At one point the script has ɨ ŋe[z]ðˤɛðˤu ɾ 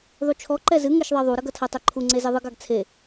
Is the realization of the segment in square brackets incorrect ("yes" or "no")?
yes